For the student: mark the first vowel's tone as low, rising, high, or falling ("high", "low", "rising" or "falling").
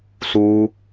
high